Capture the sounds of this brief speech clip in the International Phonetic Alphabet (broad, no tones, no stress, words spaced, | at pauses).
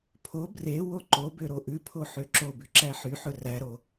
pʰo bre woǃobø ɾoʔʉpʰo ħøǁobʉ ǁæħyħɵ ræɾo